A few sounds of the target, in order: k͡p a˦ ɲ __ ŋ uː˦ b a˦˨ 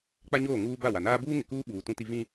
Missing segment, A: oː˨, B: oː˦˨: B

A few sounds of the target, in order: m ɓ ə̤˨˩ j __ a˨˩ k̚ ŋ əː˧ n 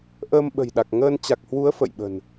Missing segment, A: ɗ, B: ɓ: A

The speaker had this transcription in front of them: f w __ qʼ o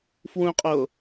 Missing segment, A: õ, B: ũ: B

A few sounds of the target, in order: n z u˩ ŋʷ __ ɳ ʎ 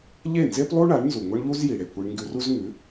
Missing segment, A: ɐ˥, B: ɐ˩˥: A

